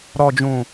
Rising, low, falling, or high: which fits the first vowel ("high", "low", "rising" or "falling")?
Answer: low